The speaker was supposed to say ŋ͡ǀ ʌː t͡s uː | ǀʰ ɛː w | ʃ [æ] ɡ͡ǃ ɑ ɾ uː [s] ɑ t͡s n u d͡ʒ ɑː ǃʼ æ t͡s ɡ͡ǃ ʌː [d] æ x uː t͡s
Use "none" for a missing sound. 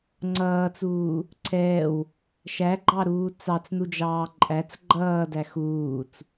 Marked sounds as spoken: æ, t͡s, d

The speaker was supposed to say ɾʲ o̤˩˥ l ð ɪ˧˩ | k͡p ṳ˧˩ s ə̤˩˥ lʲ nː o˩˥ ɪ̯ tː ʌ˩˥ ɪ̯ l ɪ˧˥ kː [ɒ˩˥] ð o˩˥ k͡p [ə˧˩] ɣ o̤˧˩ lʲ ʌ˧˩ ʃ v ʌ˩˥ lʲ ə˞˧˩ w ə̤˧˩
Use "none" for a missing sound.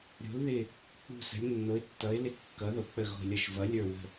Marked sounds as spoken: ʌ˩˥, ə˧˩

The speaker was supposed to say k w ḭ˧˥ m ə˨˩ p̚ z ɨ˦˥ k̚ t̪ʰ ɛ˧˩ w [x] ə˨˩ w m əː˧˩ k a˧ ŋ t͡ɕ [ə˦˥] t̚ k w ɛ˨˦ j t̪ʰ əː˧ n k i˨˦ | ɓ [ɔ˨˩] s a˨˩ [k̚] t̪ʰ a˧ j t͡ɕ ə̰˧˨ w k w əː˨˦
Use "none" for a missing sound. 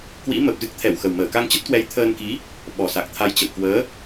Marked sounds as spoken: x, ə˦˥, ɔ˨˩, k̚

